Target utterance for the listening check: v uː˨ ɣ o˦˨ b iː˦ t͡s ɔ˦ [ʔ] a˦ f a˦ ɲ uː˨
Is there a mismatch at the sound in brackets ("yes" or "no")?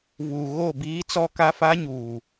yes